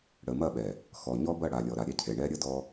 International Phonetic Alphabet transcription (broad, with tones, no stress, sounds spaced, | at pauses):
ɽ ə˨ m ɐ˦˨ ɓ ɛ˨ | x ɔ˨ ɲ ɔ˦ b ɐ˦˨ ɽ a˨ lʲ ɔ˨ ɾ a˨ ɾʲ ɛ˦ cʰ e˨ ɳ ɛ˦ ɾʲ ə˦ d ɔ˦